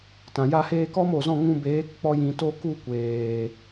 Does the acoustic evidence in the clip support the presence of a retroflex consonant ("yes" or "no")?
no